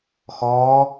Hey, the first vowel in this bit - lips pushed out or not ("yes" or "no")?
yes